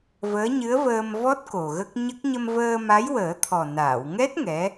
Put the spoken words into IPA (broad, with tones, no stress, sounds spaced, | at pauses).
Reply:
v əː˧˥ ɲ ɨ˧˥ ə̯ v əː˧ m v ɔ˦˥ t̚ k o˨˩ ɣ ə˦˥ k̚ ɲ ə˦˥ k̚ ɲ ə˧ m v əː˧ m a˧˥ j w əː˨˩˦ t̪ʰ ɔ˨˩ n aː˨˩˨ w ŋ ɛ˦˥ t̚ ŋ ɛ˧˥